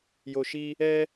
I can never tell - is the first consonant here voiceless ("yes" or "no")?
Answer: no